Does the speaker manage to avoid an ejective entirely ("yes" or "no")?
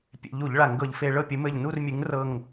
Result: yes